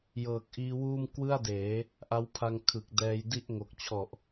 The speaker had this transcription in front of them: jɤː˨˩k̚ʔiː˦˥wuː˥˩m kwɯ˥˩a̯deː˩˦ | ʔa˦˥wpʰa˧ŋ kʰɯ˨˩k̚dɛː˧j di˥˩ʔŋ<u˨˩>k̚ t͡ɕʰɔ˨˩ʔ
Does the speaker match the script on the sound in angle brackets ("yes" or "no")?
no